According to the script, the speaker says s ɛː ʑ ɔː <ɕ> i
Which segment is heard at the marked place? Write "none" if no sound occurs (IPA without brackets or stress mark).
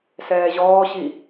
ɕ